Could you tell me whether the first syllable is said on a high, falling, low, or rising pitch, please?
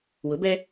rising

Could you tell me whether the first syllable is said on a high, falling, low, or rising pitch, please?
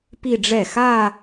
falling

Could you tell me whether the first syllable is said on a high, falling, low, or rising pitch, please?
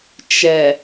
low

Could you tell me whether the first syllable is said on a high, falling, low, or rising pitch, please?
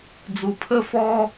low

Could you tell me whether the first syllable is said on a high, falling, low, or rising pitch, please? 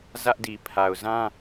high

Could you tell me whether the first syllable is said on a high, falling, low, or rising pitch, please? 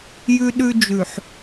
high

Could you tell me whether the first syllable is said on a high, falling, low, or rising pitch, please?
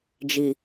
low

